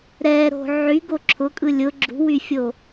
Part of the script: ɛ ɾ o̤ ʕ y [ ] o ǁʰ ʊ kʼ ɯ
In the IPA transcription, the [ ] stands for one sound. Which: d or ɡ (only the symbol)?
ɡ